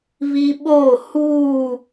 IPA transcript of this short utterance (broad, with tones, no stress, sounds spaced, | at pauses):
β i˦ ɓ oː˦˨ h uː˦˨